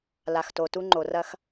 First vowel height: low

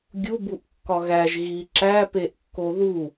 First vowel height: high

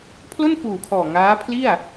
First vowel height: mid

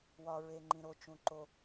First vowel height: low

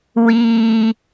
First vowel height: high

